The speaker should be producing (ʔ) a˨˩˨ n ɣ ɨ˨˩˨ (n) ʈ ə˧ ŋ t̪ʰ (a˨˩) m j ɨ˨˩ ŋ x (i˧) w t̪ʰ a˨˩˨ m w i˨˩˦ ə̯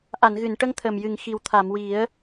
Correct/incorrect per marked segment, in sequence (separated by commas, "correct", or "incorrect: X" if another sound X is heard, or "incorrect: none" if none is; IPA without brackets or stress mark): correct, correct, incorrect: ə˨˩, incorrect: i˨˩